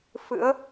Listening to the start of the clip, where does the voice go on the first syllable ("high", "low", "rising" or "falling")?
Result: rising